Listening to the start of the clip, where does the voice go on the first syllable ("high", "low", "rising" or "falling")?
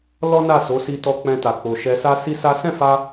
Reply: high